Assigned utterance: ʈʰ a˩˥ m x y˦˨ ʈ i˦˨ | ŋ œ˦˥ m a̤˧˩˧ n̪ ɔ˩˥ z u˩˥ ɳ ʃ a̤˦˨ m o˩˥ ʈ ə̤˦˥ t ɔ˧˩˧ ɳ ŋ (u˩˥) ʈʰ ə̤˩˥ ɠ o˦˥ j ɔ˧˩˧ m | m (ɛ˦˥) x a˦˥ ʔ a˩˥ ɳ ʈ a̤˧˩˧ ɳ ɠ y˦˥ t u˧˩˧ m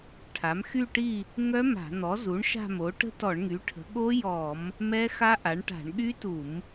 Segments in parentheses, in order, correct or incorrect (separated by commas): incorrect, correct